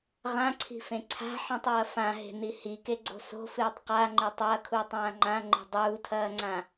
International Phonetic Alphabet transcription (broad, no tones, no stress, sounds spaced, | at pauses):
ʁ ã ǀʰ i̤ f ẽ ǀʰ a̤ ħ ĩ tˤ ɐː f ã ɦ e̤ n i h i k e ɡ͡ǀ o̤ s o̤ f ɨː tˤ q a ŋ͡ǃ e tˤ ɐː kʰ uː tˤ ãː ŋ͡ǃ ã ŋ͡ǃ e̤ dˤ uː tʰ ɐː ŋ͡ǀ ã